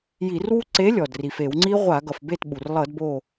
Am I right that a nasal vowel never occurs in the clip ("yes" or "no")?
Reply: yes